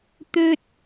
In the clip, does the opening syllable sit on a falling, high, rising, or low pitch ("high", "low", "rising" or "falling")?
high